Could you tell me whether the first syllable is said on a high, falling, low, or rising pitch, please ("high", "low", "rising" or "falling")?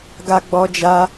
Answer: high